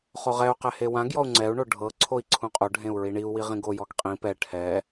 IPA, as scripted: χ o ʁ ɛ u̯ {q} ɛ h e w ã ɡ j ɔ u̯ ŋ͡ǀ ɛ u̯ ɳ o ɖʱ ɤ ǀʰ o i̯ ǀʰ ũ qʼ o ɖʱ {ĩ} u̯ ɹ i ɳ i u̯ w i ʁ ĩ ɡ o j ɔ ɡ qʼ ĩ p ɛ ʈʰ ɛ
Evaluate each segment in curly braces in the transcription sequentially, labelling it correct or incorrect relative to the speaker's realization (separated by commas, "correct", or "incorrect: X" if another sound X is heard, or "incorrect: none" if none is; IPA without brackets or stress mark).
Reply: correct, incorrect: ẽ